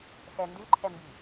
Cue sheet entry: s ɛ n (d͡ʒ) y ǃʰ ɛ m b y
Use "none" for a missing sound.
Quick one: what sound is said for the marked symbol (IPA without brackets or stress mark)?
d